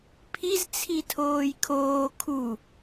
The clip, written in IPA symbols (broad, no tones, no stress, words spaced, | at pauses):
pʰiz t͡sʰitʰoːjkʰoː kʰu